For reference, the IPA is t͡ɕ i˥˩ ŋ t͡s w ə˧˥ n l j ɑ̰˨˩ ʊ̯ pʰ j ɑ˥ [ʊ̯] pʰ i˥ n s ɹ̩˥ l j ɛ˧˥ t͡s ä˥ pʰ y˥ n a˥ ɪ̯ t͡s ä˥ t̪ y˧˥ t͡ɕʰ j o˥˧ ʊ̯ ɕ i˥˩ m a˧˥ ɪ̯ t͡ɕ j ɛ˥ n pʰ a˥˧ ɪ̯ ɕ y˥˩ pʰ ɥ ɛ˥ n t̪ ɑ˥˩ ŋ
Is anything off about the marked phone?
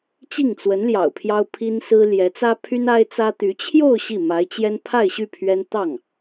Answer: no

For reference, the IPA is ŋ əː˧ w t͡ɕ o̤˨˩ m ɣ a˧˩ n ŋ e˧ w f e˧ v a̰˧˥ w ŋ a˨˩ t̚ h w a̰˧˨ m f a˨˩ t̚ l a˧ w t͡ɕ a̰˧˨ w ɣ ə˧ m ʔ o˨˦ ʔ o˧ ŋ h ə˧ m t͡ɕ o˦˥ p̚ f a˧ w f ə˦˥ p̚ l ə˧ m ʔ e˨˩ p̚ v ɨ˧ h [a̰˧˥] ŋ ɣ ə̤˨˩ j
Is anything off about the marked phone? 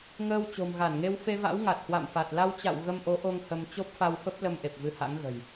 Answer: no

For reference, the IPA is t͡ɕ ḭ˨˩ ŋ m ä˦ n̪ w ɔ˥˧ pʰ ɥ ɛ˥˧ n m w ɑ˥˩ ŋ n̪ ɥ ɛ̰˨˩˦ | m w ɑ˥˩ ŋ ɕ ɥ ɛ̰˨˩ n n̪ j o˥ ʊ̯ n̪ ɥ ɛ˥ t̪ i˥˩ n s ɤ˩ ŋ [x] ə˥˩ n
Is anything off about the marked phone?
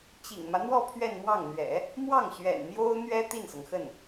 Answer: no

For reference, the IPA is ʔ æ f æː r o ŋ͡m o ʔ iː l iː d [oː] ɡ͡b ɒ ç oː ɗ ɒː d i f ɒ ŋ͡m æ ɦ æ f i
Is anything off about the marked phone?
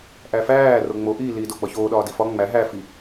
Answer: yes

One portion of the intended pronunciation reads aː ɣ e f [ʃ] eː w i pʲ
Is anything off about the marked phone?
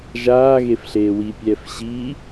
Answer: yes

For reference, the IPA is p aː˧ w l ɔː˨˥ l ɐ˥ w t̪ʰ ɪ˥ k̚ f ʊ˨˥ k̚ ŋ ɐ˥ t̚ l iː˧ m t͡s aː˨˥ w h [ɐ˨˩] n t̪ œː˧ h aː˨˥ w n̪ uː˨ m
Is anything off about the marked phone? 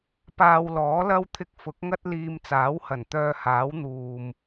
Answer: no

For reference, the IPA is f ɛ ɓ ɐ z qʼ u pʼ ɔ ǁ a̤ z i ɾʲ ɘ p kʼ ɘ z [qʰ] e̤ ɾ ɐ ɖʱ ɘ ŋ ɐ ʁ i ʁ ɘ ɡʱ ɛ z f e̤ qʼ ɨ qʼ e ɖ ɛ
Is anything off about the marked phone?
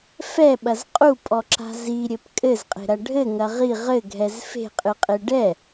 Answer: yes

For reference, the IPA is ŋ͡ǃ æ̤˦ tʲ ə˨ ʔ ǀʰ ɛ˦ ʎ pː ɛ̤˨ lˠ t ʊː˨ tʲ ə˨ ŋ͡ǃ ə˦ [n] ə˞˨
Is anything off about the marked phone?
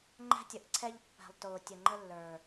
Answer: yes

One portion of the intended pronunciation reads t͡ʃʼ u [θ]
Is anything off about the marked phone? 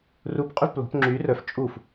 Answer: yes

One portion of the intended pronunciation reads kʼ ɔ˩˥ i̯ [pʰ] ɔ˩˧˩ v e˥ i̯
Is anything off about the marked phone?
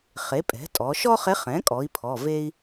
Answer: no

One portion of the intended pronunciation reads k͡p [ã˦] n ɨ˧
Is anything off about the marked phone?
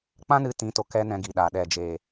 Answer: no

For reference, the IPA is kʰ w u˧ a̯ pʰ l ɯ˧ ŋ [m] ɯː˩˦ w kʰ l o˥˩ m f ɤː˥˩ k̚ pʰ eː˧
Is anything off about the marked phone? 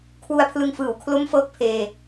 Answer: yes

